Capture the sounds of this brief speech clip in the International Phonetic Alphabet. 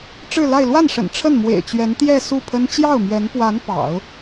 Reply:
ʈ͡ʂ ɻ̩˥˧ l a˥˧ ɪ̯ l w a˥˩ n ʂ ə̰˨˩ n ʈ͡ʂʰ ə˥˩ n m w ḛ˨˩ ɪ̯ t͡ɕ ɥ ɛ˧˥ n t̪ j ɛ˥˧ s u˥˩ pʰ ə˥ n t͡ɕ j ɑ˥˩ ʊ̯ m ɥ ɛ˧˥ n p w a˧˥ n p ɑ̰˨˩˦ ʊ̯

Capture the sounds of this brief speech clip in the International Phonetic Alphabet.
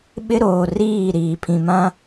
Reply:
ɓ ɪ˦ ɾ oː˨ r iː˦˨ ɾ iː˨ pʰ ĩ˨ m ã˦

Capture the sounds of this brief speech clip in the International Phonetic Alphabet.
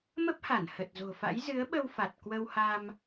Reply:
m ə˦˥ p̚ h a˧˩ n h ə˨˩ t̚ z o̤˨˩ f a̰˧˥ j z ɨ˨˦ ə̯ ɓ ə˧ w f a˨˩ t̚ k w ə˧ w h a˧ m

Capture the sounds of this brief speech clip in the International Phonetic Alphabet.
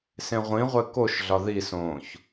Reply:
s ẽ ʁʷ ĩ ʁʷ e k o ʃ ɮ ɒ ð i s õː ç

